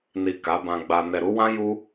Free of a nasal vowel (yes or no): no